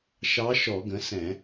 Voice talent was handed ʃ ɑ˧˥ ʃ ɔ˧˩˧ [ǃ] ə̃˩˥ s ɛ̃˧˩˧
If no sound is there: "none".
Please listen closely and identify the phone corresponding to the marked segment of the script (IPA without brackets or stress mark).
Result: ɡ